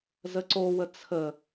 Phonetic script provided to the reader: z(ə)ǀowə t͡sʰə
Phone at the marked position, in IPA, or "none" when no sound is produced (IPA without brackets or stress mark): ə